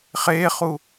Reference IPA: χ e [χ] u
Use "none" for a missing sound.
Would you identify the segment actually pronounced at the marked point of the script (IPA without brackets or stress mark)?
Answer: χ